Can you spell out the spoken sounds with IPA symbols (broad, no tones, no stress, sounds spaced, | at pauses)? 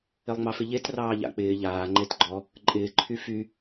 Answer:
ɪ lˠ ŋ͡m ɑ f ɪ ʎ e t r ɑː ʎ a̰ k͡p ɪː ʎ aː ŋ͡ǃ e t ɡ͡ǃ ɔ | ǃʼ ɪː ǃʰ y f y